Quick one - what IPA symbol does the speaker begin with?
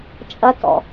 t͡ʃʼ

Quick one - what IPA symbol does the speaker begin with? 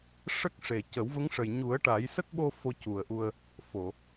ʂ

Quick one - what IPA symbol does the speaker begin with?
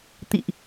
t̪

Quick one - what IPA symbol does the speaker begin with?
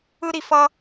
ɯ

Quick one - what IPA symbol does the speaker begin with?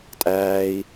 tʼ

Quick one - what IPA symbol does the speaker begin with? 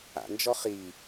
a̰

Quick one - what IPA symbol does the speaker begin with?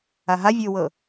a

